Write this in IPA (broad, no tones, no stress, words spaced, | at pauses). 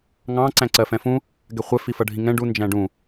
ŋɑ̃ ǀæ̃ǀɜfɛ̃fũ | ɡɛχʷɛ fifʌɖʱĩŋɛ̃ ɖu nd͡ʒæ̃ɖũ